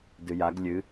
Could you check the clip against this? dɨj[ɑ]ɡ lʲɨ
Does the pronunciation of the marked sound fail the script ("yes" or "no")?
yes